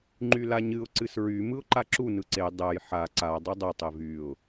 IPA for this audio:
ŋ͡ǃ y l a ɲ ɨ ʊ̯ ǀ ɨ s ɹ y m ɯ ʊ̯ ǃ a ǁ u n ɯ ǀ e dˤ ɛ j ħ a ǀ a dˤ ɯ dˤ ɛ tˤ e v y ʊ̯

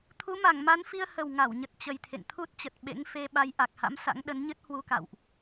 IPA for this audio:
t̪ʰ u˨˦ m a˧˩ ŋ m a˨˦ n f i˧ ə̯ h ə˨˩ w ŋ a˧˩ w ɲ ə˨˩ t̚ t͡ɕ ə˨˩ j t̪ʰ ḛ˧˨ ŋ t̪ʰ u˦˥ t̚ t͡ɕ ə˨˩ t̚ ɓ ḛ˧˥ ŋ f e˧ ɓ a˨˦ j ʔ a˨˩ k̚ h a̰˧˥ m s a̰˧˥ ŋ ɗ ə˨˦ n ɲ ɨ˦˥ t̚ h w u˧ k a̰˧˨ w ʔ

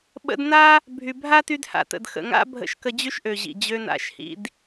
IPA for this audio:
ɓ ə̰˧ d n a˦ | bʱ y˨ bʱ a˦ t y˧ d h a̰˨ t ə̰˨ d x ə̰˨ ŋ a̰˦ bʱ ə̰˧ ʃ k ə˧ d͡ʑ y˦ ʃ ʔ ø˨ ʑ ḭ˨ d͡ʑ ø˧ n a̰˨˦ ʃ h ḭ˧ d

